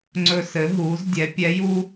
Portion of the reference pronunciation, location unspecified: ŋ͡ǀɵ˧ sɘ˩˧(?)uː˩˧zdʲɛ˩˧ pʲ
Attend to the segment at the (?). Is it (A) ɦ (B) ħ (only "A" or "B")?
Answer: A